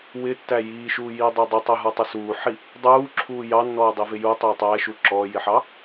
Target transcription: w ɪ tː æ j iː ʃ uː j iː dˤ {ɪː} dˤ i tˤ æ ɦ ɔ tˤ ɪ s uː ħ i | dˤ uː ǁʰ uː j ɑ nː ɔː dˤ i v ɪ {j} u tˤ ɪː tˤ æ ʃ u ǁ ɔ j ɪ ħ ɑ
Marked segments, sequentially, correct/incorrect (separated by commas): correct, correct